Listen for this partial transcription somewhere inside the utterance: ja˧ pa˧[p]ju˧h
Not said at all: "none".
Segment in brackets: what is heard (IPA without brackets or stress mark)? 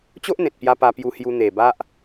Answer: p